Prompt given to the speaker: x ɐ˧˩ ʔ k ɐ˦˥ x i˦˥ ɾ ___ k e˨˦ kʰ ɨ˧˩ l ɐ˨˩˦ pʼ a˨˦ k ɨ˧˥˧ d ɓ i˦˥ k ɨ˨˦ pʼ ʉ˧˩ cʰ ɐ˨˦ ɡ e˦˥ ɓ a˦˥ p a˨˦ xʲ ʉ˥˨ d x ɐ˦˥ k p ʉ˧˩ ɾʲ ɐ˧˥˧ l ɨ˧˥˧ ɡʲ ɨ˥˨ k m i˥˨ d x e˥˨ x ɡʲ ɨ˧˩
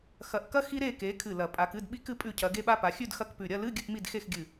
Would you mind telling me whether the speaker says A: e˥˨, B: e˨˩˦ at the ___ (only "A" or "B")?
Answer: A